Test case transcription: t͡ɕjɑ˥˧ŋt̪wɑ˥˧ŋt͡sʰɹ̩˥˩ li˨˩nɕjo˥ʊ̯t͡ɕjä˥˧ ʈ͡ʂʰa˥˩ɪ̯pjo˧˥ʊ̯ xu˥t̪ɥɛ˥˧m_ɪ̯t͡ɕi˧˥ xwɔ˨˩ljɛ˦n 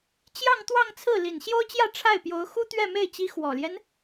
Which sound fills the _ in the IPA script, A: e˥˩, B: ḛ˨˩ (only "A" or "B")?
A